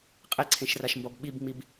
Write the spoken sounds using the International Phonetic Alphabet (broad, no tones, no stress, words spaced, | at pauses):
qʼeǀʰẽʃraʃmbɔb ɓibŋ͡mib